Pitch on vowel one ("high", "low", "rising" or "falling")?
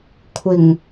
low